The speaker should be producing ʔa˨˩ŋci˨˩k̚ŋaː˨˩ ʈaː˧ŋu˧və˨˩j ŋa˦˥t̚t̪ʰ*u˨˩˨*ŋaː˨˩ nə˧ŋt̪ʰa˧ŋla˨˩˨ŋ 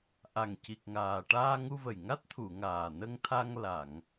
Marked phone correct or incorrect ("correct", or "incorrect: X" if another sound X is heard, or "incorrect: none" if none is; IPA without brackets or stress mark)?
correct